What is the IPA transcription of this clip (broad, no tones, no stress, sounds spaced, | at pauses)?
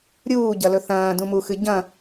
ɾʲ uː ɟ ɐ l ɵ θ ɐ̃ː d ũ m u x ɨ ɟ ɐ̃